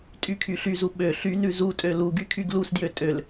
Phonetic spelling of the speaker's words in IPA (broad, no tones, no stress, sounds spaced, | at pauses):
tʼ y kʰ y ɬ y z u ɓ ø ɬ y n ʉ z u tʼ ø l u ɡ y kʰ y ɡ l u s d j ø tʼ ø l